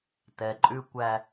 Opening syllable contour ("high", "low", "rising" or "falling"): low